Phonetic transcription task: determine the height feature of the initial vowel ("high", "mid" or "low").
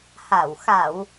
low